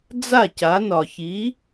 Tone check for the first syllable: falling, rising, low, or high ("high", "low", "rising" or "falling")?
falling